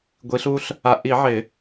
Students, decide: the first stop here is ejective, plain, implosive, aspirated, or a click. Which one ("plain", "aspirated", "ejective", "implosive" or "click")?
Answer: plain